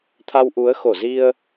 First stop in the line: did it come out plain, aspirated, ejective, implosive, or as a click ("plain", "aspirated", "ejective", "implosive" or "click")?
aspirated